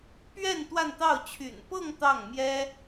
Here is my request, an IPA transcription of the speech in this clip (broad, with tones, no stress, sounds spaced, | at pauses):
p ɥ ɛ˥˧ n t̪ w a˥˧ n t̪ ɑ˥˩ ʊ̯ t͡ɕʰ y̰˨˩ n p ɤ˥˧ ŋ t̪ ɑ˥˩ ŋ m j ɛ˥